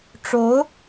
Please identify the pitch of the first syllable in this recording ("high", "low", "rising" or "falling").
rising